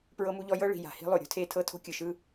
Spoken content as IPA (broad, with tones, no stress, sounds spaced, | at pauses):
p ɹ ɤ˦ m u˦ ʎ ɔ˦ j ɤ˦ ɭ i̤˨ j a̤˨ h i̤˦ lˠ o˨ ɾʲ o̤˦ tʰ e˦ tʰ ɤ˦ tʰ o̤˦ kʲ ɯ˨ ʃ ɯ˦